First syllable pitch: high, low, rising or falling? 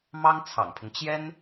high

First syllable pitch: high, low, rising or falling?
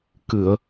low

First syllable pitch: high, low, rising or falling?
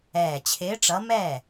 low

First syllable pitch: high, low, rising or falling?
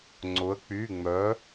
rising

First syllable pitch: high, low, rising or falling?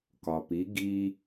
low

